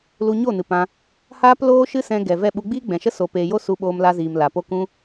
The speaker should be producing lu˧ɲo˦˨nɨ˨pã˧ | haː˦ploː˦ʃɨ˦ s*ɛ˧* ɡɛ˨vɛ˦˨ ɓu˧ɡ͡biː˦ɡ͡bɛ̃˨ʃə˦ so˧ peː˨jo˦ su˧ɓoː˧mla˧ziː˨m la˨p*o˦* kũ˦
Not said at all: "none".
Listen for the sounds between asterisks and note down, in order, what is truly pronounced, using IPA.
ɛ̃˧, o˦

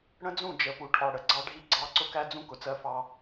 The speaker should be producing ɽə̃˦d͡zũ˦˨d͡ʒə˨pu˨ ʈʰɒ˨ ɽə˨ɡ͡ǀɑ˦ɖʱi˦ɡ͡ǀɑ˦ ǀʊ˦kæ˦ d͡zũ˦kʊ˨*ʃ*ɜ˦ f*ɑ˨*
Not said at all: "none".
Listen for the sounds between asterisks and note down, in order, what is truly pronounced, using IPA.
t͡s, ɑ˦

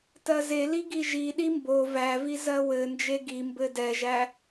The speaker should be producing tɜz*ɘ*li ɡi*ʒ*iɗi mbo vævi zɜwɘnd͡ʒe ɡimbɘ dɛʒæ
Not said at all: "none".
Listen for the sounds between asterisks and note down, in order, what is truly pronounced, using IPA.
e, ʒ

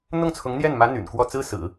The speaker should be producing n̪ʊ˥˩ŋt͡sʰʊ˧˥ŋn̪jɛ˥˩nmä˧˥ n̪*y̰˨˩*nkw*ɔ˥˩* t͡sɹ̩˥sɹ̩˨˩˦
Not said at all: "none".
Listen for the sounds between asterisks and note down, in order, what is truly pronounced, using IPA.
y̰˨˩, ɔ˥˩

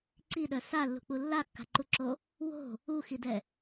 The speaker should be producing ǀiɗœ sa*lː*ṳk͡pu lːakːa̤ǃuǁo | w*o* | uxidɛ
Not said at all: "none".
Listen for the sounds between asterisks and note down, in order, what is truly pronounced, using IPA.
lː, o̤

